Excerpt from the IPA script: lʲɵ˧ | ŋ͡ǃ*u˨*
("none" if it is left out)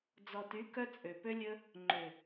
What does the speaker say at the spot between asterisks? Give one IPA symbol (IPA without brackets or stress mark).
ø˨